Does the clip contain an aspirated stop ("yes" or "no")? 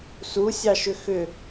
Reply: no